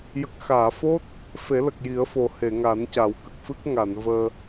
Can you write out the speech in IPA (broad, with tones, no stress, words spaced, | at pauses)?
jə˨˩k̚xaː˨˩˨fo˦˥t̚ | fe˨˩˦lə˨˩k̚ji˨˩˦ə̯fo˨˩ he˨˩˨ŋa˨˩˦nca˨˩˦w kə˨˩k̚fɨ˦˥k̚ ŋa˨˩˨nvəː˧